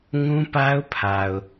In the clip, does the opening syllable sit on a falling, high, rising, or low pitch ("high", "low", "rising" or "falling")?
high